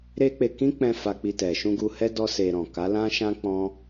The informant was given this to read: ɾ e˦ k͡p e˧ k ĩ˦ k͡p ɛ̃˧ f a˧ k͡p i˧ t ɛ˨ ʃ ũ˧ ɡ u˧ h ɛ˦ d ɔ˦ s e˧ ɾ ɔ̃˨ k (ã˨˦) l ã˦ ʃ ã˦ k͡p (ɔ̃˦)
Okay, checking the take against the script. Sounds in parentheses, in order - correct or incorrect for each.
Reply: incorrect: a˨˦, correct

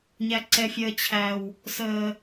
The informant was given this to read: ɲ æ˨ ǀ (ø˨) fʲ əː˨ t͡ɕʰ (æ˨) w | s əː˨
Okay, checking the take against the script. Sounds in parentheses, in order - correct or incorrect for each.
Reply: incorrect: ɛ˨, correct

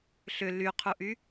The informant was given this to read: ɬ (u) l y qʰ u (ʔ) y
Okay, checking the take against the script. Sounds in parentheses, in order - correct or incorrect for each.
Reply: incorrect: ʏ, correct

